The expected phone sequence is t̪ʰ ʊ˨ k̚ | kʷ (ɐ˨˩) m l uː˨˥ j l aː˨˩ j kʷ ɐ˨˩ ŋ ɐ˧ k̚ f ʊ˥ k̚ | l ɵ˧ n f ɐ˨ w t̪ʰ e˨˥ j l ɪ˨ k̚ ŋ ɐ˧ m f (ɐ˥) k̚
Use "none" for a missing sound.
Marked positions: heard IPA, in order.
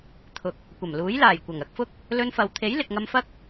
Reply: ɐ˨˩, ɐ˥

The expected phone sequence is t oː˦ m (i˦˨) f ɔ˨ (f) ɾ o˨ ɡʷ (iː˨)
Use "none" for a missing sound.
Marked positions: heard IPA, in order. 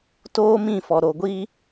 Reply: ĩ˦˨, none, iː˦

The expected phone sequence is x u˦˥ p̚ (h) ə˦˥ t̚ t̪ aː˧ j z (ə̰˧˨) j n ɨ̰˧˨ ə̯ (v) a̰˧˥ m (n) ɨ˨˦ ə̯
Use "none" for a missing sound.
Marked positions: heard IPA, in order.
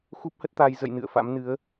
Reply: h, ə̰˧˨, f, n

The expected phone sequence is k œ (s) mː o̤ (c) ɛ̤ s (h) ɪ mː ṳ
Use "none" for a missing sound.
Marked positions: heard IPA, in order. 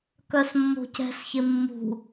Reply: s, c, ç

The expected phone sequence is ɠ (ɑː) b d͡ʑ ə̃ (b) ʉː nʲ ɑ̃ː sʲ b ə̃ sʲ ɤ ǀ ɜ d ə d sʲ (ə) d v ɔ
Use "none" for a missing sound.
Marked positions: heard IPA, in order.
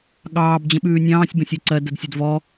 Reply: ɑː, ɓ, ə

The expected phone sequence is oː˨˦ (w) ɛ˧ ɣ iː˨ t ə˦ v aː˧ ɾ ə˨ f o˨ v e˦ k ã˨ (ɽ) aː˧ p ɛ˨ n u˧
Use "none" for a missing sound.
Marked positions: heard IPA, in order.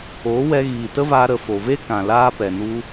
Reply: w, l

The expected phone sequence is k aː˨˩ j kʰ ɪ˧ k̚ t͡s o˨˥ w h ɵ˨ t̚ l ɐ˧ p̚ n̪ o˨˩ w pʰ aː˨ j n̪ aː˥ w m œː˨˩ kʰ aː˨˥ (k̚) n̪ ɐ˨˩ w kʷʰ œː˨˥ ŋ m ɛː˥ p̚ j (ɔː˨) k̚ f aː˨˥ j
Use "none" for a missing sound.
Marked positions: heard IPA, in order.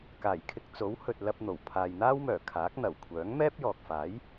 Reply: k̚, ɔː˨

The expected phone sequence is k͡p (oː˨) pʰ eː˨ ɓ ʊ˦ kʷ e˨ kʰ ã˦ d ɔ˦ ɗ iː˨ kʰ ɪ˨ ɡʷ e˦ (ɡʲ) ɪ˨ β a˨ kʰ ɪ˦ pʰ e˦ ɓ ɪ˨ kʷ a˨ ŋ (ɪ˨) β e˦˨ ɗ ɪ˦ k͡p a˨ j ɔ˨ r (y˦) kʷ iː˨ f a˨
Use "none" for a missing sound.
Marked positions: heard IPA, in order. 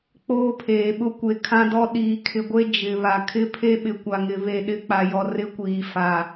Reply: oː˦, d͡ʒ, ɪ˨, ɪ˦

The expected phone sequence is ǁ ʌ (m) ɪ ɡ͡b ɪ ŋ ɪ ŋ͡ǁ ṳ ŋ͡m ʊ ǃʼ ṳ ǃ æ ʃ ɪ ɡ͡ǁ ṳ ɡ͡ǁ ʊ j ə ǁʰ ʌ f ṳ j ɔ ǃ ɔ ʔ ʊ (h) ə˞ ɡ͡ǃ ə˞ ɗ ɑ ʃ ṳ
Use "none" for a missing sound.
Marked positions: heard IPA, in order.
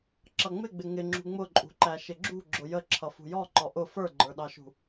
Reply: ŋ͡m, f

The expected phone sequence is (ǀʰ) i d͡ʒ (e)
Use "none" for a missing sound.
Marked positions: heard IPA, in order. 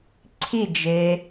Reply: ǀʰ, e

